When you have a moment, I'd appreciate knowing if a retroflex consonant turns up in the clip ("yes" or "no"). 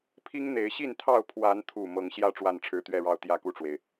yes